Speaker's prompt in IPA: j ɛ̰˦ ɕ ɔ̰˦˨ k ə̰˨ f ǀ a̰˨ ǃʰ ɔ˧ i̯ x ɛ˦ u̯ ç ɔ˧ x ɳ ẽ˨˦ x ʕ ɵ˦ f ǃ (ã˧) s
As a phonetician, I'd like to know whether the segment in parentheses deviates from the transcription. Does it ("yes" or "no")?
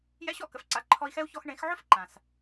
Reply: yes